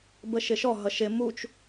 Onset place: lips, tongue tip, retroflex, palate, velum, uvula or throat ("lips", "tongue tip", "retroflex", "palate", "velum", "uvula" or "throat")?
lips